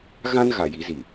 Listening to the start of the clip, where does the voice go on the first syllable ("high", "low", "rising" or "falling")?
high